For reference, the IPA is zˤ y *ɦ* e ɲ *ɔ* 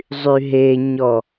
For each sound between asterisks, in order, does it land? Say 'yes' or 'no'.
yes, yes

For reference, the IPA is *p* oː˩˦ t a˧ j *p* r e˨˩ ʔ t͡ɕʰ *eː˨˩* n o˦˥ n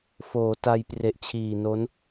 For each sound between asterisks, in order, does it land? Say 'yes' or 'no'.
no, yes, no

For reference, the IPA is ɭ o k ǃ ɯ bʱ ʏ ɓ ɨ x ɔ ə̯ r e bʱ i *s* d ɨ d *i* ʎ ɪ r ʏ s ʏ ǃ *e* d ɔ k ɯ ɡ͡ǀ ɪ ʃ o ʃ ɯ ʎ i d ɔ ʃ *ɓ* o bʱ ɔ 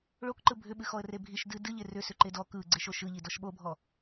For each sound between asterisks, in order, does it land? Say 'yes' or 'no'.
no, no, yes, yes

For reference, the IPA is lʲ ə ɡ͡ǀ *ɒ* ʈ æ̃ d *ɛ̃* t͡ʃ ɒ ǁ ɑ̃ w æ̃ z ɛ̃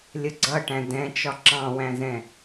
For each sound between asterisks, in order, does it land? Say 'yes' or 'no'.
no, yes

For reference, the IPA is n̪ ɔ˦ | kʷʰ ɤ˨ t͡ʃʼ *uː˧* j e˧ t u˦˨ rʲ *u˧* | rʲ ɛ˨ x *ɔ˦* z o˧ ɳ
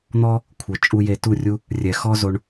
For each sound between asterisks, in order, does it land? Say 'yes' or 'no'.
no, no, yes

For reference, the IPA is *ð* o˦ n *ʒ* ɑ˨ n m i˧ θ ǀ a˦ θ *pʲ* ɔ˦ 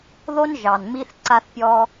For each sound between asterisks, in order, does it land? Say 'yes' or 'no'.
yes, yes, yes

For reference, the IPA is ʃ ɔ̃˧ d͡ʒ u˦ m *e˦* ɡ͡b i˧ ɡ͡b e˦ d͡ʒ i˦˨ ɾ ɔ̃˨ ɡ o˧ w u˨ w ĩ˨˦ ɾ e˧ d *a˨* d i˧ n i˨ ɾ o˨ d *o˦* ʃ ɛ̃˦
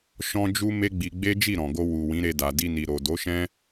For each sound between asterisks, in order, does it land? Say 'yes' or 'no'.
yes, yes, no

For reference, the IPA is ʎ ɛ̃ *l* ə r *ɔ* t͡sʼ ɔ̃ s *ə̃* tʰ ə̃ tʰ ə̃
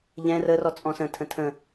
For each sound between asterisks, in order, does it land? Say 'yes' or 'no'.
no, yes, yes

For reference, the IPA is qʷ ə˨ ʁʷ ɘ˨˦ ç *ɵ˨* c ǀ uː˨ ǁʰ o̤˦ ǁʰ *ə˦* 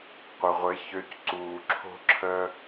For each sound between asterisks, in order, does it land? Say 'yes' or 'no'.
no, yes

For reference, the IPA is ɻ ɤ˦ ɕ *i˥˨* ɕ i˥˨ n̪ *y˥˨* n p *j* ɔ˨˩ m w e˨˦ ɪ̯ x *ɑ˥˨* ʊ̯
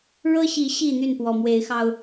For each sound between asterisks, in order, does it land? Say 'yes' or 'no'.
no, yes, no, no

